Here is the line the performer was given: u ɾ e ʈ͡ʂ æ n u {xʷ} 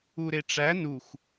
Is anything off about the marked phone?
no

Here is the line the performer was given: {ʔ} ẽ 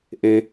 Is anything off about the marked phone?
no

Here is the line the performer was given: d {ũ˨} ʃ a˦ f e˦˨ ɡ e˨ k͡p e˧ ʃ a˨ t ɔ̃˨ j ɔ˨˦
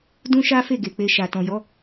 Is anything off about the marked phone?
yes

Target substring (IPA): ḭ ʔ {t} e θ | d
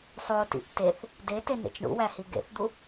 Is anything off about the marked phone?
no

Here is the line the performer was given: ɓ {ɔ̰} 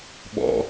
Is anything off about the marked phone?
no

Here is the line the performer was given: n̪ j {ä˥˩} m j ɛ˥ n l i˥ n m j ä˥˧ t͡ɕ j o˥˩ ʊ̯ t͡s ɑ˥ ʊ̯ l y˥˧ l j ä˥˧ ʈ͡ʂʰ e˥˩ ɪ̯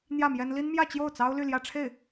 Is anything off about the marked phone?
no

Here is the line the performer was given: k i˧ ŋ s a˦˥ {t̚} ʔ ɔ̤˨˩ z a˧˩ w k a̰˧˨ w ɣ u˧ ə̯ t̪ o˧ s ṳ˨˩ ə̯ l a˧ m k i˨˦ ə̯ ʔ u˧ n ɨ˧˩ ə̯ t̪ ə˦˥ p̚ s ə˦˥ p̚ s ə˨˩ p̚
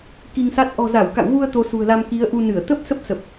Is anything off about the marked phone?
no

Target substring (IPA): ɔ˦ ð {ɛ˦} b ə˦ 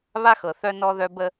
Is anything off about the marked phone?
yes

